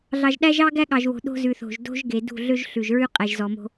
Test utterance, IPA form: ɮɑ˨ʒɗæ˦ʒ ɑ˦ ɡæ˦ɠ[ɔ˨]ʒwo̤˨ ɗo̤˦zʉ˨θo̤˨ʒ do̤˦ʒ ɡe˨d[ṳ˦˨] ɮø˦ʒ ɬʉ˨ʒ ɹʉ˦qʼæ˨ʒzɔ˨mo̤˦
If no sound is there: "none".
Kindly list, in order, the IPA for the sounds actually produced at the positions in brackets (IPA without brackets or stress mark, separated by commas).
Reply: ɑ˨, ṳ˦˨